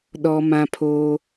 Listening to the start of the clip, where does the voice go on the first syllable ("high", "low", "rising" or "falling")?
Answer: high